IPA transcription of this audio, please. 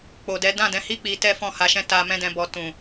k͡p o˨ d ɛ˨˦ d ã˦˨ d ɛ̃˨˦ h i˦ k͡p i˧ t ɛ˦ f ɔ̃˦˨ h a˧ ʃ ɛ̃˦ t a˧ m ɛ̃˦ d ɛ̃˧ b ɔ˧ t ũ˨

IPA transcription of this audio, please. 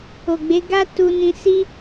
o˨ ɡ͡b e˨˦ ɡ a˦ t u˧ n ĩ˧ s i˦

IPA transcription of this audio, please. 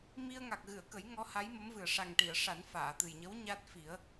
m i˧ ə̯ ŋ a˨˩ k̚ ɣ ɨ˨˩˨ ə̯ k ə˨˩˦ j ŋ ɔ˧˥ h a˧˥ j m ə˧˥ m v ɨ˨˩ ə̯ ʂ a˨˩ ŋ ʈ i˨˩˨ ə̯ ʂ a˨˩˦ n f aː˨˩˨ t̪ ɨ˨˩ j ɲ ə˧˥ w ɲ a˦˥ t̚ f i˨˩˦ ə̯

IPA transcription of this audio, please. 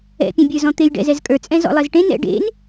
ɛ̰ pʲ ɛ̃ bʲ ə˞ z ɔ̃ t̪ e j ɖ ɛ̰ z ɛ z kʼ ə˞ t͡sʼ ɛ̃ z ɔ̰ lˠ e z ʈ ẽ n ɛ̰ ɖ ḛ n

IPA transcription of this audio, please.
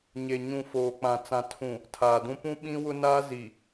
ɲ e˨ ɲ ũ˨ f oː˨ k͡p ã˨ t͡s ã˨ tʰ ũ˨ | tʰ aː˨ d ũ˦ p ũ˦ ɓ ĩ˦ w ʊ˦ n aː˦ z i˨

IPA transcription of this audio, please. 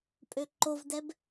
pʼ ø ǃ o v d ɛ b

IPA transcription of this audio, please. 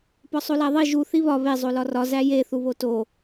p ɒ sˤ o l æ ðˤ i ʒ u θ i β ɒ β e zˤ o l ɒ r ɒ z æ j e θ u β o t o

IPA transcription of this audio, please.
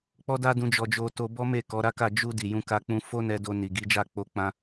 k͡p ɔ˦ d a˦ d ũ˧ d͡ʒ ɔ˧ d͡ʒ o˧ t o˧ b ɔ˦ m e˦˨ k ɔ˨˦ ɾ a˦ k a˦˨ d͡ʒ u˧ d i˨ j ũ˧ k a˧ k͡p ũ˧ f o˦ n ɛ˧ d o˧ n i˨ ɡ i˨˦ d͡ʒ a˦˨ k͡p o˧ k͡p ã˧

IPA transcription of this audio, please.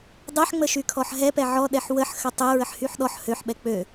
dˤ ɛ ħ ŋ͡m ə ʃ y kʰ ɔ ħ ɦ ɛ p ɛ ʕ ɔ ɗ ɛ ħ w ə ħ x ə tˤ e ɹ ə ħ h y ħ ɗ ɔ ħ h ø ħ ɓ ɛ k͡p ø

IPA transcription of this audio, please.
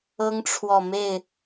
ɤ˦ ŋ ʈ͡ʂʰ w ɔ˨ m e˥˨ ɪ̯

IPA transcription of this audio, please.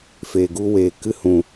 f eː˨ ɡ u˧ w eː˨ k ɨ˦ h ũ˨

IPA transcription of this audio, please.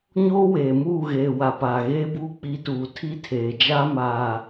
ɲ oː˦ w eː˨ m uː˦˨ ɣ eː˨ w a˨ p aː˨ ɣ eː˦ b uː˦ k͡p i˨˦ t uː˨ tʰ i˦ tʰ eː˨ d͡ʒ a˦ m aː˨

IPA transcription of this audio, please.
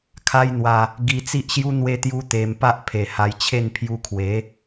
kʰ a˦ j n̪ w a˧ | ɡ i˧ t͡s i˦ ʔ ɕ j u˦ n̪ w e˦ t̪ j u˦ t̪ e˧ m p a˦ ʔ pʰ e˨˩ h a˧ j t͡ɕʰ e˥˧ n pʰ j u˧ kʰ w e˨˦

